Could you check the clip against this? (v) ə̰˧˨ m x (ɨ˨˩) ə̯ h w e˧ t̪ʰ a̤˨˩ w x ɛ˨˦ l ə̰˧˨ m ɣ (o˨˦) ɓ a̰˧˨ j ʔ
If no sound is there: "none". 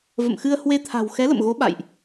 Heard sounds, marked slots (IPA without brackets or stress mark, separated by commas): v, ɨ˧, o˨˦